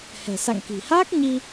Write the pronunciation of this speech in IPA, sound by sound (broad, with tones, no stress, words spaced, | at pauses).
hɛ̤˨˩sa̰˧˨ŋki̤˨˩ haː˦˥k̚ɲi˧